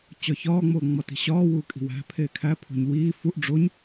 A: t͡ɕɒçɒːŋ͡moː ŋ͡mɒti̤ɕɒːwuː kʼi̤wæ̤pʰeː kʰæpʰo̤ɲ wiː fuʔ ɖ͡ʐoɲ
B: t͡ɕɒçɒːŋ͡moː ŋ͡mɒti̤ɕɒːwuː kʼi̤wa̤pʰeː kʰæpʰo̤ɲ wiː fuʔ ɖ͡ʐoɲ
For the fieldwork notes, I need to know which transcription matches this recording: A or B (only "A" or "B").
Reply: A